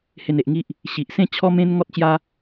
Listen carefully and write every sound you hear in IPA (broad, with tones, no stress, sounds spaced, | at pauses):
h e˧ n e˨ ʔ ŋ i˦ ʔ | ɕ i˨ ʔ s ẽ˥˧ t͡ɕʰ ɔ˦ m ẽ˦ n ŋ ɔ˦ t̚ t͡ɕ j a˦